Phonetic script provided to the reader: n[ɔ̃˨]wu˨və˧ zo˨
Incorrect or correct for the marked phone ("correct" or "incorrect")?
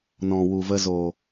correct